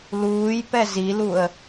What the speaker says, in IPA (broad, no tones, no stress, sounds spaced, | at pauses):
l uː j p ɛ z i l u ə̯